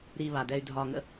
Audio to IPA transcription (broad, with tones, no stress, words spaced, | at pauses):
ɾi˨βa˩dɛ˨y̯ dʱɒː˨ŋə̰˦